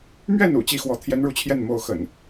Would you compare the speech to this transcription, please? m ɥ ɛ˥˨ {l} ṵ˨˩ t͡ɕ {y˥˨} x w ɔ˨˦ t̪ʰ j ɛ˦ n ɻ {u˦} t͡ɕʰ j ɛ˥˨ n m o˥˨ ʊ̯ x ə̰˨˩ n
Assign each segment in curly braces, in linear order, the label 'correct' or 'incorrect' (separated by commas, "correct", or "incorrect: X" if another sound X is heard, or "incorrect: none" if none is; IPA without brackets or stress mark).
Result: incorrect: n, incorrect: i˥˨, incorrect: u˥˨